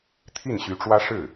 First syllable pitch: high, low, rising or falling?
falling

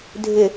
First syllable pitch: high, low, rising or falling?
low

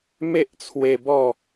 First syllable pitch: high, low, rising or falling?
high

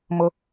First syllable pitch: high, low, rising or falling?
high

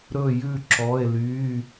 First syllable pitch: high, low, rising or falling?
falling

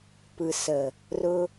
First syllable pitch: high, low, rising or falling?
low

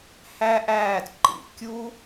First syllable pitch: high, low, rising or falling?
high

